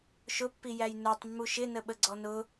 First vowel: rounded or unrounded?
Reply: rounded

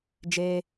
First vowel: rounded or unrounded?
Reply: unrounded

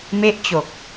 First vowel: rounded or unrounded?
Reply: unrounded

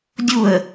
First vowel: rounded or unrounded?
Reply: rounded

